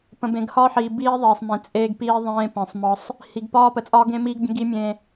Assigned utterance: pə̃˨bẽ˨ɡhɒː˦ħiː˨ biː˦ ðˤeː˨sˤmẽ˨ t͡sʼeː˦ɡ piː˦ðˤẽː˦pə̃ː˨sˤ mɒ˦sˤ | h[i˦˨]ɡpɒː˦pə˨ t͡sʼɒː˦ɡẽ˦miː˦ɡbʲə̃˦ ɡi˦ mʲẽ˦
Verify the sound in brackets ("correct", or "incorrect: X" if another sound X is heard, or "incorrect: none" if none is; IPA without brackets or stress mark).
incorrect: i˨